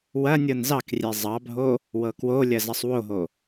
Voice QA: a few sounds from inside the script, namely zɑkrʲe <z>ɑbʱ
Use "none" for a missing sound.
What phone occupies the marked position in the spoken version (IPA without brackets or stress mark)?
zˤ